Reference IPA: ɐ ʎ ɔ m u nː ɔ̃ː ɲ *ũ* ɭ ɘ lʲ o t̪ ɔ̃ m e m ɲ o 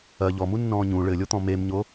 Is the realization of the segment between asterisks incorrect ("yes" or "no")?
no